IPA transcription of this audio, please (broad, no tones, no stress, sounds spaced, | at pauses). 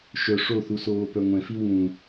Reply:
ʃ œ ʂ o θ u s oː p œ ŋʷ ɛ̃ f i w ũ